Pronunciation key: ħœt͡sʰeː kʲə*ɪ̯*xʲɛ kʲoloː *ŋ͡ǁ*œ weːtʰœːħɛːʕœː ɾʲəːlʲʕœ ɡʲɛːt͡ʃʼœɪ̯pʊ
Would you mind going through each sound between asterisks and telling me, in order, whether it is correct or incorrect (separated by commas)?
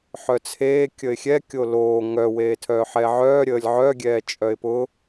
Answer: correct, incorrect